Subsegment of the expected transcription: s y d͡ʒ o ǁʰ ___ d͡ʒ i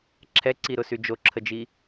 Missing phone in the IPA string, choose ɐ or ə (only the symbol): ə